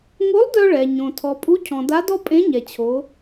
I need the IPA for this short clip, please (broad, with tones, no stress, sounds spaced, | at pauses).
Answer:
ŋ o˧˥ lˠ d œ˧ ɭ ɛ˩ ɲ õ˩ tʰ ɔ˩ pʼ u˧˥ cʰ ɔ̃˩ d a˧˥ d ɔ˥ pʼ ẽ˧˥ ɲ ɛ˩ t͡ɕʰ o˩˧